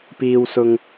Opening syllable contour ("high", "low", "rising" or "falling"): low